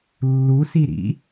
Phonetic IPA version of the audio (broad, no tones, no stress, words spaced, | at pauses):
lːusi ɾḭ